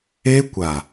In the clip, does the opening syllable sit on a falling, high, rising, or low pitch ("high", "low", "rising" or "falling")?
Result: high